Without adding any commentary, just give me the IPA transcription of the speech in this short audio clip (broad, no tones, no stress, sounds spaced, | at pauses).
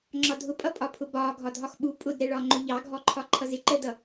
ŋ͡ǁ ɒ dʱ ʊ pʼ ʌ pʼ ɒ pʰ ʊ b ɒː ɡʱ ɒ dʱ ɒ x ɓ u pʼ ʊ d ɾ ɛ ɭ ɒ ŋ͡ǃ ʊ ʎ ɑ ɡʱ ɔ ǃʰ ɒ ǃʰ ʌ z ɪ ǃ əː d ʌ